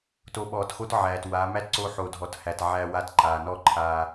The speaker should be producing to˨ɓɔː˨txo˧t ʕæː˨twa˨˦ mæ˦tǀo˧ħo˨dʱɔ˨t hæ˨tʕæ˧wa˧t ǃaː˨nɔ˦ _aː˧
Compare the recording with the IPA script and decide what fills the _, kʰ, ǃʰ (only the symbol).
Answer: ǃʰ